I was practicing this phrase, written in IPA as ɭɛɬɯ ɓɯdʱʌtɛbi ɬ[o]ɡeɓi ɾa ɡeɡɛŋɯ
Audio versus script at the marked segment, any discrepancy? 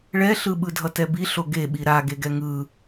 no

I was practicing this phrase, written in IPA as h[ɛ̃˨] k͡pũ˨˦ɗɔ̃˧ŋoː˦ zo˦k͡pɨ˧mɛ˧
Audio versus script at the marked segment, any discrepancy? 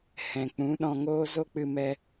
no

